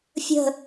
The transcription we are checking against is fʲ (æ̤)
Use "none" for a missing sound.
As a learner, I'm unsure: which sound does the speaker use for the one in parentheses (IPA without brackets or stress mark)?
ə̤